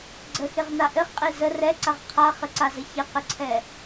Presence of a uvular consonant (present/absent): present